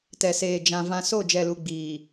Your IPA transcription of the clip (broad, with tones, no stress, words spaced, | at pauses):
tɛ˨seː˨ d͡ʒã˨ vã˨so˦˨ d͡ʒɛ˨lu˨ ɡ͡biː˨